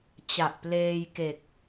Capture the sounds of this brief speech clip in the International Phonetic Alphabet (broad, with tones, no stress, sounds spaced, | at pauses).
t͡ɕ a˨˩ ʔ p l eː˧ j k e˨˩ k̚